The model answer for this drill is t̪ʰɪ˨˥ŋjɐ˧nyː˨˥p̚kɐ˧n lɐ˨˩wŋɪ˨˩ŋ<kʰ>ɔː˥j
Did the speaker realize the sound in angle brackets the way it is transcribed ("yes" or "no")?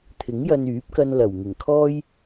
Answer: yes